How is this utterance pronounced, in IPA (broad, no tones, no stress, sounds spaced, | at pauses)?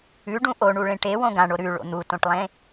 ʉ ɖ ũ ʔ o ɳ u ɭ ẽ ʈ e w õ ɡ ã ɳ o ɾ ʉ ɭ o̰ n̪ u t õ ʈ lˠ ẽ